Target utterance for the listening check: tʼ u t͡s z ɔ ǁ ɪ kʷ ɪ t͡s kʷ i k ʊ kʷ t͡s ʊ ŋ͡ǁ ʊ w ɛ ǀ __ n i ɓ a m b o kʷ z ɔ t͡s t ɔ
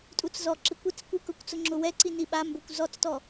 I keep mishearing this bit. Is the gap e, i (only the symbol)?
i